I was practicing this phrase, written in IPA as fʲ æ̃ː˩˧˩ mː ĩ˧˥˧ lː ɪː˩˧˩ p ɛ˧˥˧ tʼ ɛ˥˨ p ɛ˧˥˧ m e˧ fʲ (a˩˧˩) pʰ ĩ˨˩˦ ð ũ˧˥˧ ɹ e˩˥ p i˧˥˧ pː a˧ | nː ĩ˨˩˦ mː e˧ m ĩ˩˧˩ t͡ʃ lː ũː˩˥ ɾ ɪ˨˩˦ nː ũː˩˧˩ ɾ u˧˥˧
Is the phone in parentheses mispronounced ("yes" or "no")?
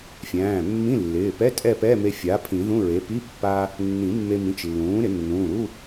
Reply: yes